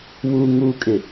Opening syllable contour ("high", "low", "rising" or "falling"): low